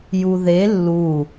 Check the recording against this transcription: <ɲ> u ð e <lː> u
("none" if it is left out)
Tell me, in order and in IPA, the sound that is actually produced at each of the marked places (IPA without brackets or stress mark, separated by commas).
j, lː